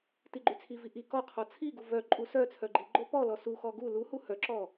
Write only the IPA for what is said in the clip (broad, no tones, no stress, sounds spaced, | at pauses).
t i ɡ͡ǃ y t͡sʰ i v i ʔ i k ɔ qʰ ɔ t͡sʰ i ɡ u v œ ǃʼ u s œ t͡sʰ œ ɡ͡ǃ i ɡ͡ǃ o p ɔ l ɔ s u x ɔ ɡ u l u h u h œ ǁ ɔ